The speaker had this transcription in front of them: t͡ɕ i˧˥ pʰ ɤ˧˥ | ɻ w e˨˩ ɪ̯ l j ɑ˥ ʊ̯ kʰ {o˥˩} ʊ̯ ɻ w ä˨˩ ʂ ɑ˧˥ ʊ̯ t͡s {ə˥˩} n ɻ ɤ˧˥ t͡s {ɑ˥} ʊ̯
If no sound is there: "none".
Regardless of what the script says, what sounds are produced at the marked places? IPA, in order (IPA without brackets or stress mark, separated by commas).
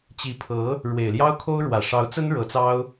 o˥, ə˥, ɑ˥